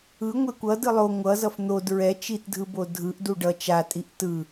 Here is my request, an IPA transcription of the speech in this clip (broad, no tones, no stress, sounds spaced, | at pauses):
ɯ ŋʷ e kʷ ʌ d ɯ lˠ o ŋʷ ʌ z ʌ f n̪ o d ɹ ɛ t͡ʃ i t dʱ ɯ b o dʱ ɯ ʔ d u ɖ ʌ t͡ʃ a tʼ i ʔ t ɯ